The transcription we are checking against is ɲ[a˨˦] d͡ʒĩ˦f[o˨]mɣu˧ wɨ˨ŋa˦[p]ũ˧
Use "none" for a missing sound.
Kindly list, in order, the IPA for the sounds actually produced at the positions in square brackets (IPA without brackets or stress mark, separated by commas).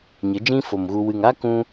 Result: ə˨˦, o˨, k